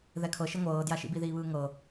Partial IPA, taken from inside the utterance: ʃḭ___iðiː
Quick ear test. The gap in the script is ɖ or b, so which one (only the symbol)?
b